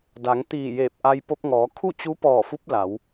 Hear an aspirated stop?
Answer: yes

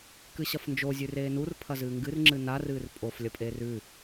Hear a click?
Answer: yes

